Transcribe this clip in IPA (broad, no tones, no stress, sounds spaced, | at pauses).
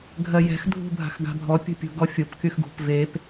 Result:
ɡʱ ɜ j ɛ̤ x dʱ ṳ bʱ a̤ x ɡ a̤ bʱ ɔ pʲ ṳ pʲ ṳ ɡ ɔ fʲ o p k y x ɡ ṳ p v e p